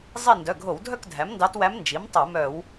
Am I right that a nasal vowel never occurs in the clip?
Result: yes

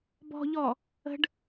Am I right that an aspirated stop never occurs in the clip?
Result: yes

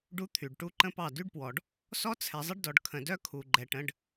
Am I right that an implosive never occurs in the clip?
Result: yes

